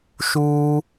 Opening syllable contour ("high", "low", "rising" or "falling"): high